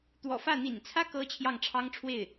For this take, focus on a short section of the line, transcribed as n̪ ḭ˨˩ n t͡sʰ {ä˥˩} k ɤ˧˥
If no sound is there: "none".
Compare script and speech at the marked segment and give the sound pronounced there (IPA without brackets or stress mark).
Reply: ä˥